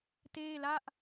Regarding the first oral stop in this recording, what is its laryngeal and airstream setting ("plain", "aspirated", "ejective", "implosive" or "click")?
plain